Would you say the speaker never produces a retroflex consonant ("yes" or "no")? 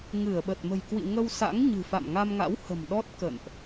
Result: yes